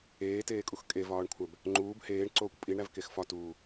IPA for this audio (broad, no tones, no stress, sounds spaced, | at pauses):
eː t eː kʼ u x kʼ e v ɒː ɳ kʷʰ æ b | ŋ͡ǃ uː b h eː ɳ ǀ oː kʷ pʼ i ɳ ɾ æ v k e x f ɒ t uː